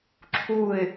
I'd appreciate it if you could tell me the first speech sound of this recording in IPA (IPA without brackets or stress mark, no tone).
ǁʰ